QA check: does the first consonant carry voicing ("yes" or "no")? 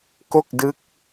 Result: no